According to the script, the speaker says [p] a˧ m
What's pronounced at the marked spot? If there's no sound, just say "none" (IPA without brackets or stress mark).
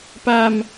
p